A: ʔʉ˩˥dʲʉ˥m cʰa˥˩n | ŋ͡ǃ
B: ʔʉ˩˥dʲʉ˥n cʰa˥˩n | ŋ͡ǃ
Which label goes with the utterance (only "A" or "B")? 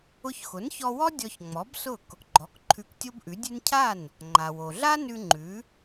B